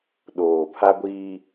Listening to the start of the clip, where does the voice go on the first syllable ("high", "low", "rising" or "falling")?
low